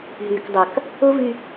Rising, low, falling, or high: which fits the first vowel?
low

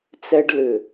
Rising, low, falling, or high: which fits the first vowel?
high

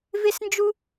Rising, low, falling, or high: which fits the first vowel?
high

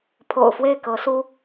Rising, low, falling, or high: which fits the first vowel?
low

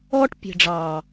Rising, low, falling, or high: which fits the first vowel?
high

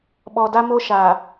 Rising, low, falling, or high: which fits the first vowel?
low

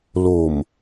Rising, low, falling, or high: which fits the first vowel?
low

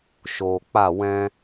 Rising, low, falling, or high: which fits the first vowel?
low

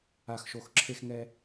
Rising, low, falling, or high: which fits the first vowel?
low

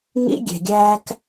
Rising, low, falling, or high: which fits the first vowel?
high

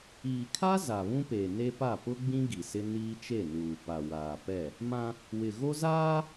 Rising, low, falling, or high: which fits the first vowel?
low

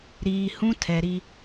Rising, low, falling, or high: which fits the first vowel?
low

